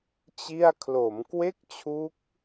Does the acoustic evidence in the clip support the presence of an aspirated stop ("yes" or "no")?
yes